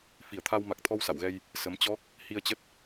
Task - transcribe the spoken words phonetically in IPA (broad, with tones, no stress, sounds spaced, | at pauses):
f i˧˩ ə̯ t̪ʰ a˧ w m a˨˩ k̚ t̪ʰ ɔ˧ w s a̰˧˨ w ɣ ɛ˧ j | s ə˨˦ m t͡ɕ ɔ˦˥ k̚ | h i˧ ə̯ t͡ɕ ə˦˥ t̚